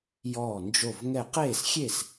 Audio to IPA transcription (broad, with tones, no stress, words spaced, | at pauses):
jɔː˧˩nd͡ʒo˧˩v ŋɛ˧˩qeː˥˩sxʲe˥˩s